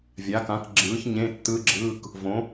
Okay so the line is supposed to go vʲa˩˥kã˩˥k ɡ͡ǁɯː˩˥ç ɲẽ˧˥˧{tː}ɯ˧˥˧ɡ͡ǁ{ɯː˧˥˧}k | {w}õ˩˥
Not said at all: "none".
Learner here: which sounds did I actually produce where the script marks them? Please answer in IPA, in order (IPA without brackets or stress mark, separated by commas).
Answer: tː, ɯː˧˥˧, v